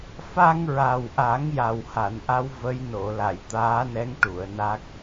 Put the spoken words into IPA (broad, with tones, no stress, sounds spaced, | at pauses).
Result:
f a˧ ŋ ɹ a˨˩ w ʔ a˨˩˦ ŋ j a˨˩ w h a˨˩˨ n ʔ a˧˥ w v ə˧˥ j n o˨˩˨ l a˨˩˨ j t̪ aː˧˥ n ɛ˧˥ ŋ ʈ u˨˩˨ ə̯ n a˦˥ k̚